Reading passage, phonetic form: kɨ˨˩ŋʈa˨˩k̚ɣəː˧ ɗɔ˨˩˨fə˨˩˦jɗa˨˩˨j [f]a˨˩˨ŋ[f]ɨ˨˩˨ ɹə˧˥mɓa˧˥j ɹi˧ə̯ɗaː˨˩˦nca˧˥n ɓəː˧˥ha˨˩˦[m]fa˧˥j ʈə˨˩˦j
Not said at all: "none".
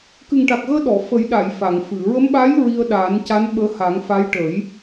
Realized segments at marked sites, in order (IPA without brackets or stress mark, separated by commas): f, f, ŋ